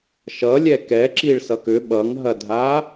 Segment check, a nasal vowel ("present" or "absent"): absent